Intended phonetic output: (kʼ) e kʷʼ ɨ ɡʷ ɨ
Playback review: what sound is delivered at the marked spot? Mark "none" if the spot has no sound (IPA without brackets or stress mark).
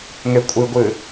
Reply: ŋ